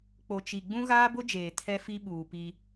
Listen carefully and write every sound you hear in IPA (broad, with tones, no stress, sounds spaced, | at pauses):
k͡p o˨ t͡ʃ i˨ ɡ͡b ũ˦ ɣ aː˦ b ʊ˦ d͡ʒ eː˨ tʰ ɛ˦ f i˦ ɓ uː˨ p i˦